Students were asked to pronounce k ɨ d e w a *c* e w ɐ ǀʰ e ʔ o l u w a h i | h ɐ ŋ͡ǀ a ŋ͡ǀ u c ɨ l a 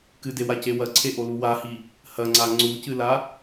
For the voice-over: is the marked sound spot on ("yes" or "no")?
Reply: yes